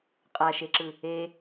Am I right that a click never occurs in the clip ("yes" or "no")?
no